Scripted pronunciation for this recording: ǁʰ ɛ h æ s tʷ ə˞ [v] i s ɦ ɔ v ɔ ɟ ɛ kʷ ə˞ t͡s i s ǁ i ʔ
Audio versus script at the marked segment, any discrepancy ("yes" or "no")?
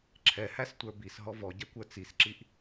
yes